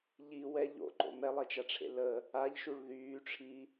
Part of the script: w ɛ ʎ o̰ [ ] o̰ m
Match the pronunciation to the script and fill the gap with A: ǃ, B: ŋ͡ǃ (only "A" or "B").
A